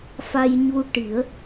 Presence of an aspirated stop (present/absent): absent